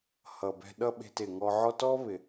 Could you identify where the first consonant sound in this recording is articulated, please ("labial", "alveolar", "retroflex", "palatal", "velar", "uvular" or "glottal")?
glottal